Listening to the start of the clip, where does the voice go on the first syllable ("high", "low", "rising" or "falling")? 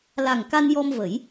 low